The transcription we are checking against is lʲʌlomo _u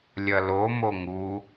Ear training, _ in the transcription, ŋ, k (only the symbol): ŋ